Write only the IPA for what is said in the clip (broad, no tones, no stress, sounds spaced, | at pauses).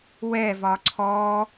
w ɛ v ɒ ǀʰ ɔ